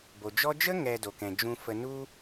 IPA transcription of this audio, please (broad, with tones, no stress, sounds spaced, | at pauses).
b o˨ d͡ʒ ɔ˦ d͡ʒ ə˦ ŋ ɛ˨ d o˨ k ɛ̃˨ d͡ʒ ũ˦ f ə˦ n u˦